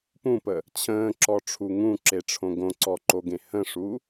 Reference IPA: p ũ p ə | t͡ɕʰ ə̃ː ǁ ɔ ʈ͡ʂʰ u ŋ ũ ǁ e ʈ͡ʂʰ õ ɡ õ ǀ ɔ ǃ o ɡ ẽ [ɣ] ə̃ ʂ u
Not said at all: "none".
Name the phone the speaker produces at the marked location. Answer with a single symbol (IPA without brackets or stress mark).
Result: h